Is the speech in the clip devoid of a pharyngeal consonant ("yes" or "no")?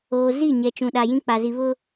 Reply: yes